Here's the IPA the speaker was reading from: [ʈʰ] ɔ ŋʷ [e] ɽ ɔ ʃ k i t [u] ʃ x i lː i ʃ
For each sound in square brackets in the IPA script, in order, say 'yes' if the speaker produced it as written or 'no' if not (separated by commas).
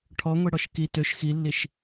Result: yes, yes, no